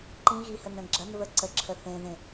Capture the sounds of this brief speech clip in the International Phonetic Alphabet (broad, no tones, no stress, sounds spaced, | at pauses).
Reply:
ǃ ĩ ɣ i h ə n ə̃ ɡ͡ǁ ɐ n β ə ǀ ə ǁʰ ə θ ẽ ð ẽ